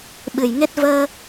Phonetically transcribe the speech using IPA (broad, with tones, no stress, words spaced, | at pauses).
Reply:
ɓɨ˨˩jŋe˦˥t̚ vəː˧